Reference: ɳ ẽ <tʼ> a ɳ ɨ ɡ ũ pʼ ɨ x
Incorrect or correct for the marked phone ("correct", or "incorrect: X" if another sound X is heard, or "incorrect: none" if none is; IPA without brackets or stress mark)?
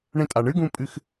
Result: correct